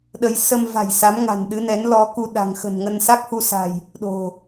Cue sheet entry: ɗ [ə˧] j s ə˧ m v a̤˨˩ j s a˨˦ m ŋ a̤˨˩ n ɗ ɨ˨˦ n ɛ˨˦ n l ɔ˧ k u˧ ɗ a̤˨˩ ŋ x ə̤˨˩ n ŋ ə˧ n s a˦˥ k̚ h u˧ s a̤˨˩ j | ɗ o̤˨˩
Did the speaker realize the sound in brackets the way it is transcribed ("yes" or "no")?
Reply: yes